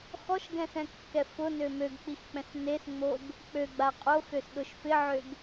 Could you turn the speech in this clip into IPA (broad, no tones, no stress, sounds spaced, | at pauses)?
x ɔ ʃ ɡ ɛ̃ s ɛ̃ kː ɛ f ʊ n ø m ø ɡ k͡p i x k͡p ɛ̃ s n e s ŋ͡m o ɡ | k͡p ø ɡ͡b a qʼ o x ø s ɗ ʊ ʃ f ɪ ʕ ø ɡ